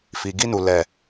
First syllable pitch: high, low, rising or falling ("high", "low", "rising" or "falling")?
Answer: low